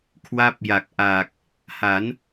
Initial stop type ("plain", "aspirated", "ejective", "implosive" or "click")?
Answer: aspirated